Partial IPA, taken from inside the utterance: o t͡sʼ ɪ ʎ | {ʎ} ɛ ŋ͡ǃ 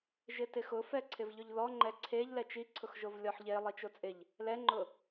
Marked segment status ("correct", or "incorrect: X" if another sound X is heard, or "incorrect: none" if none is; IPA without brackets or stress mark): incorrect: l